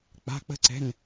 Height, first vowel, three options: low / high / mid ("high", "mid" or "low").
low